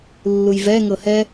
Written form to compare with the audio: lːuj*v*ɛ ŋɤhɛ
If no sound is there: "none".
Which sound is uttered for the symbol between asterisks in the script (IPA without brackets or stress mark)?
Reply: v